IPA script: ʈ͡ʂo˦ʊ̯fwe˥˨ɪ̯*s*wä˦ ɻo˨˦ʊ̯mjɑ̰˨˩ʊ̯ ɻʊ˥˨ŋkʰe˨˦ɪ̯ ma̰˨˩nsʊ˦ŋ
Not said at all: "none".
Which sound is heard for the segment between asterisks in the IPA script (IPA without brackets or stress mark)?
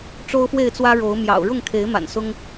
t͡s